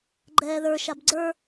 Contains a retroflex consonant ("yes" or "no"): no